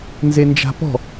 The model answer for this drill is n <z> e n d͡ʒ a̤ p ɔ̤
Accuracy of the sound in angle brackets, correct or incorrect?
correct